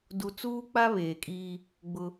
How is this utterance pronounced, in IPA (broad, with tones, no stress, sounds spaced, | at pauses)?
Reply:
d u˦ t͡s uː˦ k͡p a˦ β eː˨ kʼ iː˦ | ɡ͡b ʊ˦